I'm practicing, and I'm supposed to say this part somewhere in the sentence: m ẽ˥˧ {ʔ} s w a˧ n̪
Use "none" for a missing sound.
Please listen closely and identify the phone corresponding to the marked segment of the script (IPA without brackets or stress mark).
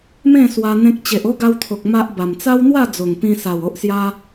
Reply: none